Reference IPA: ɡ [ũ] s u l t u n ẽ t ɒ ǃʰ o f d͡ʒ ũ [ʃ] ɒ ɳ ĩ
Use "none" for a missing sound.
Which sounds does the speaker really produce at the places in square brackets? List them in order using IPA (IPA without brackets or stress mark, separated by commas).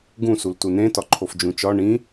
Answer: ũ, t͡ʃ